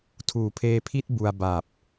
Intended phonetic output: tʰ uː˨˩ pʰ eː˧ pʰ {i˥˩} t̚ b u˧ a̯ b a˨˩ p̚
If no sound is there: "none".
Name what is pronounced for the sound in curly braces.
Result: i˥˩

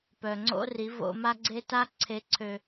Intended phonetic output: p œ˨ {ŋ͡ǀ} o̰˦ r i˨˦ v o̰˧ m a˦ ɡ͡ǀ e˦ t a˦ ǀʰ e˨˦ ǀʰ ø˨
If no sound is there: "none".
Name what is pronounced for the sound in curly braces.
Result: ŋ͡ǀ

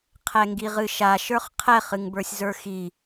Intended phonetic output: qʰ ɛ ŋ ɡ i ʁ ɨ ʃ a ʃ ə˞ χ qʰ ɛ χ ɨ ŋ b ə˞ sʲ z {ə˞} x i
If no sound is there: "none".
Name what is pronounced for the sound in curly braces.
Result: ə˞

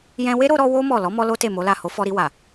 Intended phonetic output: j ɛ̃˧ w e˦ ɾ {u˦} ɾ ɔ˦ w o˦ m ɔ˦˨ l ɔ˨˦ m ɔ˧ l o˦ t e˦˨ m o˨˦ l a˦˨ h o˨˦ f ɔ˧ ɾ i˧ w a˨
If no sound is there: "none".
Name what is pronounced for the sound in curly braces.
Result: o˦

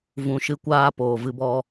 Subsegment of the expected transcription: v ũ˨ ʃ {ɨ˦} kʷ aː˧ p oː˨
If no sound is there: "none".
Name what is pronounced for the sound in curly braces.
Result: ɨ˧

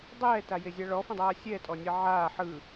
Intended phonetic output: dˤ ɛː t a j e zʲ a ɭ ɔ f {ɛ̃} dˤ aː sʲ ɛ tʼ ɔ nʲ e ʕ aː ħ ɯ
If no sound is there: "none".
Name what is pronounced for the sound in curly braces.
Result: ɛ̃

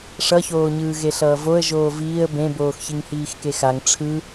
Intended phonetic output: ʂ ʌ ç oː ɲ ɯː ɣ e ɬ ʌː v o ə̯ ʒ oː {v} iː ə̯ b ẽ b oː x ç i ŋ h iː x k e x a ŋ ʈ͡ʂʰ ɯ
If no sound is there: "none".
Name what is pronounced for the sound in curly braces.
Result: v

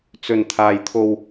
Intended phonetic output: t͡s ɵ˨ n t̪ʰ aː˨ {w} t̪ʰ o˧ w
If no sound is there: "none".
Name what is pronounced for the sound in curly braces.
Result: j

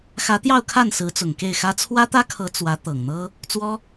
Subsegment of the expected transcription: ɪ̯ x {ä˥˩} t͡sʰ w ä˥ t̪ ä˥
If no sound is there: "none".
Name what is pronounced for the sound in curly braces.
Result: ä˥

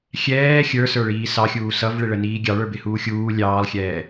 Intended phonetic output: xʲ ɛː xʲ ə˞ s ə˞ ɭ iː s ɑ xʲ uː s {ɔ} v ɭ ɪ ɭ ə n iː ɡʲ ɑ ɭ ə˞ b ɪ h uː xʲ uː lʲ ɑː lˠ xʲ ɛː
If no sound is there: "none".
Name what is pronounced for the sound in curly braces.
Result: ʌ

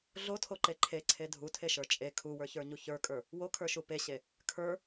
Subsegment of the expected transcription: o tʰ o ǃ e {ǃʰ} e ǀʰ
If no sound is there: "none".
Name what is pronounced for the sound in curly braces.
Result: ǃʰ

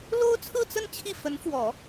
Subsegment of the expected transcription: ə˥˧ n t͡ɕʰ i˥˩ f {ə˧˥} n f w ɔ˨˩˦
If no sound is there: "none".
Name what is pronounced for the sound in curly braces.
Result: ə˧˥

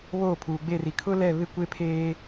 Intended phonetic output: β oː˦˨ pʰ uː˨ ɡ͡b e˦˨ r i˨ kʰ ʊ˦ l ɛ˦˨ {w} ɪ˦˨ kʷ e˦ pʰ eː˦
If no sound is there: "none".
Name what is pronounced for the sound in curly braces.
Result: β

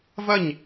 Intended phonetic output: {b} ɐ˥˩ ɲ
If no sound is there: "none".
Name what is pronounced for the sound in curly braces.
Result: v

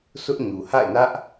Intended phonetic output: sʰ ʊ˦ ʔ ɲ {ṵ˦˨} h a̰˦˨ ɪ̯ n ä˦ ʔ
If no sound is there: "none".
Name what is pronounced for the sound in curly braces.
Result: u˨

